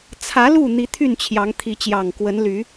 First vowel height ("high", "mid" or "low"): low